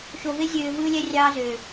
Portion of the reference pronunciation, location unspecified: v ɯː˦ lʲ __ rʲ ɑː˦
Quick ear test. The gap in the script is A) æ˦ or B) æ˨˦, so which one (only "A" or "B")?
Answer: A